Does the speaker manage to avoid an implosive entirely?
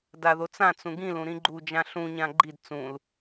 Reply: yes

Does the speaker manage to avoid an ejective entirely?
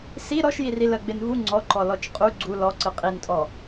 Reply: no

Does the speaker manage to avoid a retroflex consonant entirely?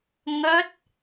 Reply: yes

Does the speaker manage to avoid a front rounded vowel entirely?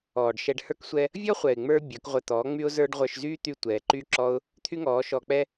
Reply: no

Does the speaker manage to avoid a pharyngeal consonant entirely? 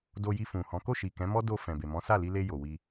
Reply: yes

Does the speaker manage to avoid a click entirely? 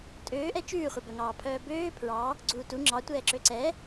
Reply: no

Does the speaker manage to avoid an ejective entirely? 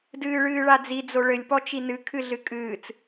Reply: no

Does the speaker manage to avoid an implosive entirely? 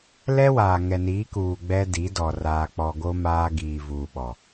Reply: no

